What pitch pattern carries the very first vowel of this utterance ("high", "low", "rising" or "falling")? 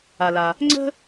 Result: low